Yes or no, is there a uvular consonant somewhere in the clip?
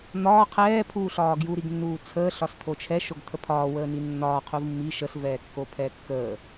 yes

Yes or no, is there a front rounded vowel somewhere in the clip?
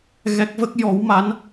no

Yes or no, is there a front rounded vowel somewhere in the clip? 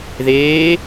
no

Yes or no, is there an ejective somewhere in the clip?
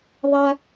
no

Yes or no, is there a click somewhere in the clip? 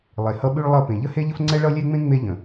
yes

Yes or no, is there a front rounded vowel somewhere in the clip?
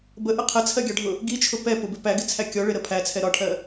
no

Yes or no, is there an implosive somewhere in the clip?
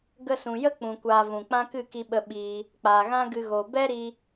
yes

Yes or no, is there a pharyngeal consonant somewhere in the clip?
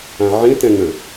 yes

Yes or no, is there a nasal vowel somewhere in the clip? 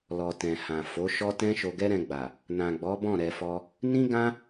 yes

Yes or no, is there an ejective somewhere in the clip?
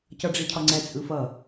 yes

